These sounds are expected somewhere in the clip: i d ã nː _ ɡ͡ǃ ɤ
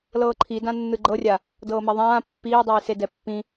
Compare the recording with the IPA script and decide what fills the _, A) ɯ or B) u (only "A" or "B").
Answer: A